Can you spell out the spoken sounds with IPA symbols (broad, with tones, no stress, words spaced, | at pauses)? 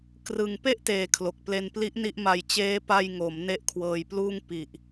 krɯ˧ŋ pe˥˩ʔteː˩˦ kʰlo˨˩k̚ple˧npli˦˥ʔ ni˥˩ʔma˧j t͡ɕeː˦˥ pa˧jŋo˩˦m ne˦˥ʔkʰwɤː˧jpluː˥˩ŋ pi˨˩ʔ